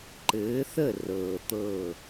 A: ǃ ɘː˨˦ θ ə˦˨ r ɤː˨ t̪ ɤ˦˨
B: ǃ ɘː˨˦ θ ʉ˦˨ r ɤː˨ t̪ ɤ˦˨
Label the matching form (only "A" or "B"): A